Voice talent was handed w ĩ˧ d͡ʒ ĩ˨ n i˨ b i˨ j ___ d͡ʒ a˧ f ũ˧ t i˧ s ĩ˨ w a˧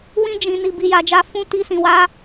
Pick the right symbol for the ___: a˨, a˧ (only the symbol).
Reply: a˨